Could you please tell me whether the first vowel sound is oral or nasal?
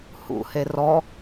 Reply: oral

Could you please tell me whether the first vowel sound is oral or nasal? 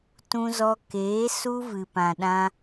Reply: nasal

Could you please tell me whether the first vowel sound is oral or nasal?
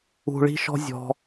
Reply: oral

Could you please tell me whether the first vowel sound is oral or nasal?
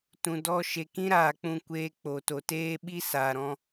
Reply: nasal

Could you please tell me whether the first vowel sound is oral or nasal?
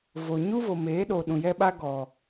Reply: oral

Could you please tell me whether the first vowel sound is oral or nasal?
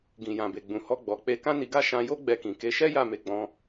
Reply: nasal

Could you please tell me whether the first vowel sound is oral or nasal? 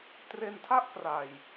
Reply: oral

